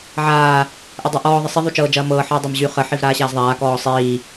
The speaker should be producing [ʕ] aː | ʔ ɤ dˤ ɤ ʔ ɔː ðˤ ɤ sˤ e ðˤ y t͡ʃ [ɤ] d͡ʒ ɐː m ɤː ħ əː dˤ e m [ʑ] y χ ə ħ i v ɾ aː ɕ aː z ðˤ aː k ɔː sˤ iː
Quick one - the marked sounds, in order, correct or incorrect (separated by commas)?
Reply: correct, incorrect, correct